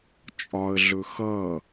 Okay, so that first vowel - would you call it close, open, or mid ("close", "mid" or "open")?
open